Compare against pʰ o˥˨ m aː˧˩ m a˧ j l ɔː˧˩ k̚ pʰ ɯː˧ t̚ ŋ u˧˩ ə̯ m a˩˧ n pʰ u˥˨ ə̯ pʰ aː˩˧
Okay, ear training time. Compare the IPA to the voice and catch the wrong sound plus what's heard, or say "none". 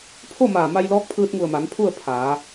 ɔː˧˩ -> ɔː˧˥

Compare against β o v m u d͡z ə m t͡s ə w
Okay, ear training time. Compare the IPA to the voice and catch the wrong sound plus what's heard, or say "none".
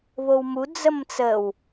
v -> w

